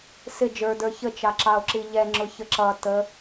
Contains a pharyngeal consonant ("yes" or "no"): no